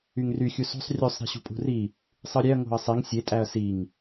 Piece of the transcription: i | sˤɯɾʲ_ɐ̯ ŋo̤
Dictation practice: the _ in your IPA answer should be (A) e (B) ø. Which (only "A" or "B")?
A